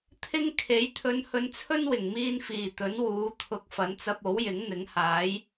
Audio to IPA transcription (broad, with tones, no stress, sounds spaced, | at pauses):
t̪ʰ ɪ˥ ŋ kʰ e˨˥ j t̪ʰ ɵ˧ n h ɵ˧ n t͡sʰ ɵ˥ n w ɪ˨˩ ŋ m iː˧ n f iː˨˩ t̪ ɵ˨˥ n w uː˨˥ t̪ʰ ʊ˨˥ k̚ f ɐ˨˥ n t͡s ɐ˧ p̚ o˨˥ w j ɪ˨˥ ŋ n̪ ɪ˨˥ ŋ h aː˨˥ j